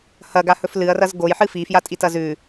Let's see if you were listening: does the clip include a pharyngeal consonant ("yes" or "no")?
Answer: yes